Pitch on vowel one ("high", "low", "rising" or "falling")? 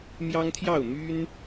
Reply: high